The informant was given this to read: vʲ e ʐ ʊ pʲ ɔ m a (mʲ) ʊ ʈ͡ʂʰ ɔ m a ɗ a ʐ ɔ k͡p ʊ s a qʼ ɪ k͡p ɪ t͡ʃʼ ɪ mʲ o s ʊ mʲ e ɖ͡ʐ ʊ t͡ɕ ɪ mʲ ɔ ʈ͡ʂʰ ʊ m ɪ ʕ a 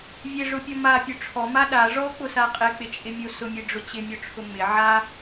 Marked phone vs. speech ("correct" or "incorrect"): incorrect